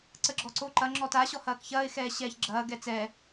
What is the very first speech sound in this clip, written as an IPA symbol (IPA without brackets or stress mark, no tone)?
ǀ